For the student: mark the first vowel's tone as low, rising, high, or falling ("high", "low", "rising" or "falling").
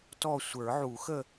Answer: falling